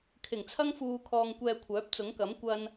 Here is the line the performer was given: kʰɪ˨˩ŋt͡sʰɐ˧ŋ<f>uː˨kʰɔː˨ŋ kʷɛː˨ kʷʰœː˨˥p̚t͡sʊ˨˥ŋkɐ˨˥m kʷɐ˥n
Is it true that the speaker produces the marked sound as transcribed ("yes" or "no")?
yes